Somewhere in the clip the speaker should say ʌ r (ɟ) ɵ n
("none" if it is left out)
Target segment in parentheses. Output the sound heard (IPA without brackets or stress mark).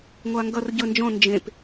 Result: ɟ